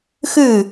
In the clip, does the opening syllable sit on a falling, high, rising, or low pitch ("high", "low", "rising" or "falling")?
falling